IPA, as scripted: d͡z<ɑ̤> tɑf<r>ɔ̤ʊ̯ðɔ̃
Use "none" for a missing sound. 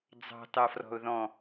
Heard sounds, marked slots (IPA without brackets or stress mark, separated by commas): ɑ̤, r